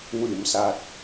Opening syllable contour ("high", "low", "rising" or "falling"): low